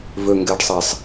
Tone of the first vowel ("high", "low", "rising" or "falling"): low